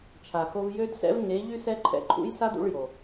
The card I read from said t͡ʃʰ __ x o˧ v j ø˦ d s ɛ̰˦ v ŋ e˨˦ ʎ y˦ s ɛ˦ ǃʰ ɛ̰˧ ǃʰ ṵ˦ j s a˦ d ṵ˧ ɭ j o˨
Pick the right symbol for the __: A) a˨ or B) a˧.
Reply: A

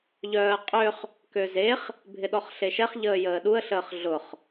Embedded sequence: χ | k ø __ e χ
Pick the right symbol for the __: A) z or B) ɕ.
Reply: A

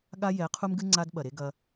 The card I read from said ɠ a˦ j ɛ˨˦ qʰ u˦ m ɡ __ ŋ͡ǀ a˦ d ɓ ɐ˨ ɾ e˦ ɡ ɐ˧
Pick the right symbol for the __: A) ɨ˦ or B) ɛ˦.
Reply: A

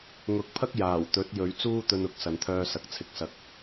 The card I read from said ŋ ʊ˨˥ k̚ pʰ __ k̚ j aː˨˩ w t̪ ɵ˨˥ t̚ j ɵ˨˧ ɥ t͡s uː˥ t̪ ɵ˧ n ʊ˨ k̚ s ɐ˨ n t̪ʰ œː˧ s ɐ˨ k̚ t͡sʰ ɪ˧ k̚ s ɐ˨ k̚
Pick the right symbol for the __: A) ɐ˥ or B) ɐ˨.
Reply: A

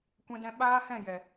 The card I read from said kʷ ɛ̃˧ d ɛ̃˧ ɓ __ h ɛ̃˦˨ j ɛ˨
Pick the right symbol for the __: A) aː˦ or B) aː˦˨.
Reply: A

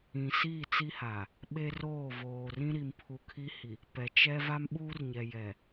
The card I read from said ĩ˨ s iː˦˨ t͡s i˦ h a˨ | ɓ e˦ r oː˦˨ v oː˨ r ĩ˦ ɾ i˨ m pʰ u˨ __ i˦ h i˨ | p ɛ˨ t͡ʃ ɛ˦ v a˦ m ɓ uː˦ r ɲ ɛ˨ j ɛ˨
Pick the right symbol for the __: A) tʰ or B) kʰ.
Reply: B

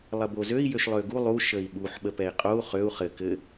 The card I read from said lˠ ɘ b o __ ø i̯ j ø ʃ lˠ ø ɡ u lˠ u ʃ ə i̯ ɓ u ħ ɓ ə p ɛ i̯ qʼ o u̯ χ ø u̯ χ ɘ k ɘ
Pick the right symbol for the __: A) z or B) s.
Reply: A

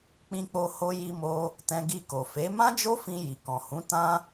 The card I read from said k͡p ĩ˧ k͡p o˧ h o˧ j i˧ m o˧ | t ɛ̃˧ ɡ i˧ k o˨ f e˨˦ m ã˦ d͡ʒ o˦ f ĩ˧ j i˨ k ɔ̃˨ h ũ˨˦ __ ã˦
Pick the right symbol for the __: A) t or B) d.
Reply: A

